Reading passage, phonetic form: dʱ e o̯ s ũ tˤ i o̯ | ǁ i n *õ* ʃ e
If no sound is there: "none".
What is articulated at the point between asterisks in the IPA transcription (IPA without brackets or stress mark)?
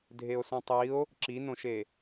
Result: õ